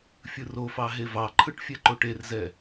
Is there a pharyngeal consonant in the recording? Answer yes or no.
no